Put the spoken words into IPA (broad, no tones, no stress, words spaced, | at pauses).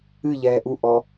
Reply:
ɨʎɛː ʔuʔɔ